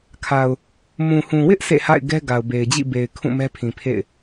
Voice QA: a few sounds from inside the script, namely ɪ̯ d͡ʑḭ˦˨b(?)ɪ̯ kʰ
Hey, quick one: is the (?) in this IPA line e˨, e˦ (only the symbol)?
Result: e˨